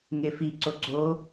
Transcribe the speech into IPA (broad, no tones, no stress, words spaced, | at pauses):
ŋefi ǀoɡ͡ǀo